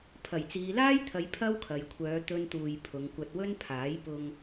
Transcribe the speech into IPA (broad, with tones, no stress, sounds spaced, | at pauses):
pʰ ɐ˨˩ j t͡s iː˨ l aː˥ j t̪ʰ ɐ˨˧ j pʰ ɐ˥ w kʰ ɐ˨ j kʷʰ œː˨˧ t̪ ɵ˥ n t̪ uː˧ j pʰ ʊ˨˧ ŋ kʷ ɐ˧ t̚ w ɵ˥ n pʰ aː˨˥ j p ʊ˧ ŋ